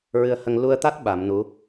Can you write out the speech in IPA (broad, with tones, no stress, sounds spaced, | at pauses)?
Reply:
ɹ ɨ˧ ə̯ h ə˧ ŋ l u˧ ə̯ t̪ a˦˥ t̚ ɓ a˨˩˦ m n u˧˥